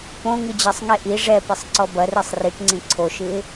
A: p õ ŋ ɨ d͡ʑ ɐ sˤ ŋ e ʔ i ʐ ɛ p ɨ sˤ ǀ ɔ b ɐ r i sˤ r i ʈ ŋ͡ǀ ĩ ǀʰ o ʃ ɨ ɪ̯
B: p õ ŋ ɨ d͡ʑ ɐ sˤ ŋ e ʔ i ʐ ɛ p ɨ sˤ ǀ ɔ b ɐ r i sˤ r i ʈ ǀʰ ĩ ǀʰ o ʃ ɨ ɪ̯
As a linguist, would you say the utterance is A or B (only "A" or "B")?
A